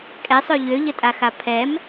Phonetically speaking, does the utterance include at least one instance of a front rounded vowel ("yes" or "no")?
yes